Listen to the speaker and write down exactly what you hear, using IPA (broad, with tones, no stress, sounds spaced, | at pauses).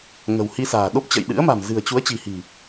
ŋ ə̤˨˩ w h i˧ s a̤ː˨˩ ɗ o˦˥ p̚ t͡ɕ ə̰˧˨ j ɗ ɨ̰˧˥ ə̯ m a̤˨˩ m z ɨ̤˨˩ ə̯ t͡ɕ u˨˦ ə̯ t͡ɕ i̤˨˩ h i̤˨˩